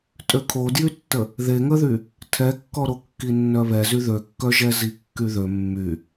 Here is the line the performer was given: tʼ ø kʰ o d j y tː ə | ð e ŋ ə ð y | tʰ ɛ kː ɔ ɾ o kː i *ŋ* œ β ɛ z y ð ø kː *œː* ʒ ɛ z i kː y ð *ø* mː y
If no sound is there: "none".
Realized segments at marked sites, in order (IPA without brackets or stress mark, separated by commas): nː, œ, ø